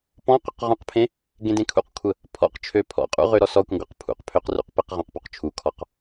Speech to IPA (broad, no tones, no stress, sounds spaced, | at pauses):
p ɔ̃ q ʊ q ʁ ũ q pʰ ẽ | ɡ ẽ d ẽ kʰ ṵ q kʷʰ ə | pʰ ɔ̰ q t͡ʃʰ ø pʰ ɔ̰ qʼ ṵ ʁ ø ɾ ɔ s ɔ kʷ ə̃ ɡʷ ə q pʰ ṵ q pʰ ø q r ṵ q p e q ʁ ɔ̃ q p u q t͡ʃʰ u kʰ ɔ q